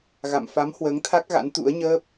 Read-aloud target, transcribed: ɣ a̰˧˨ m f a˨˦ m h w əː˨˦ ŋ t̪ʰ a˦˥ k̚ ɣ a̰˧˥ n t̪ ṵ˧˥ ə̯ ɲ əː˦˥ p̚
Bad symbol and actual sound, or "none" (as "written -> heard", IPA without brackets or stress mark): none